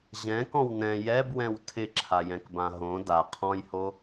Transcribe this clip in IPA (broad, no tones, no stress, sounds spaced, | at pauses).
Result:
ʑ ɛ̃ k ɔ̃ w n ɛ̃ j ɛ b w ɛ̃ w tʰ ɪ ǁʰ a j ɛ̃ k b ã ɦ õ d a qʰ ɔ̃ j h o